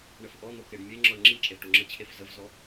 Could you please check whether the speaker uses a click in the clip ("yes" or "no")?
yes